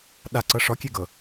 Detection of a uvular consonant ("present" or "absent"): absent